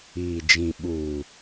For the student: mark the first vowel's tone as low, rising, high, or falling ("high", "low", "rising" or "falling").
low